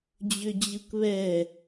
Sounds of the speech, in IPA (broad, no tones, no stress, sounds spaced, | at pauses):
d͡ʑ ʏ d͡ʑ ɯ k β ɛ